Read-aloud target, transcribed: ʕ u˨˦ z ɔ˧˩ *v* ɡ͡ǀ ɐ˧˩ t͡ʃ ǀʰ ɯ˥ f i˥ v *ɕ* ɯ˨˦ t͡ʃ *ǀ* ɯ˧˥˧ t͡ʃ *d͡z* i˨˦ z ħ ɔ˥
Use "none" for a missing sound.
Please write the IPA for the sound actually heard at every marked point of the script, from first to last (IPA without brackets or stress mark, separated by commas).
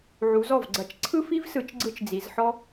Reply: v, s, ɡ͡ǀ, d͡z